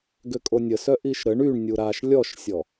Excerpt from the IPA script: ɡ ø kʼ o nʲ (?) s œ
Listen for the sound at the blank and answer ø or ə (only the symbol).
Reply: ə